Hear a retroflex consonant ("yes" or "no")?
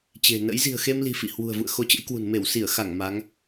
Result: no